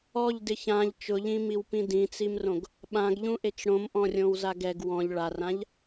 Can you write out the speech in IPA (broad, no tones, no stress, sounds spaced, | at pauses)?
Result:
ɔ ʎ d ɪ ç ã ʎ t͡ʃ ʊ ʎ ĩ m i w p ĩ d ĩ t͡s i m r õ ɡ | ɓ ã ɡ ʎ ũ ʔ e t͡ʃ ɽ õ m ʔ ɔ̃ rʲ õ w z a ɡ ɛ ɡ w ɔ̃ ʎ ɭ a r ã ʎ